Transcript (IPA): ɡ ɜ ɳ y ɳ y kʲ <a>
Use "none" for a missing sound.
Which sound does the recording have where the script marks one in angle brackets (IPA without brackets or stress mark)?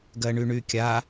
a